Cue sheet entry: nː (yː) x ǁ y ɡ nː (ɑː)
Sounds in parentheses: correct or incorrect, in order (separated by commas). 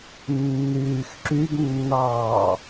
correct, correct